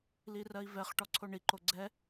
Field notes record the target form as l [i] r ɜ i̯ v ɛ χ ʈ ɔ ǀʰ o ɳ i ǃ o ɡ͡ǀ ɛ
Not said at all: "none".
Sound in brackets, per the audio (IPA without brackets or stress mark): i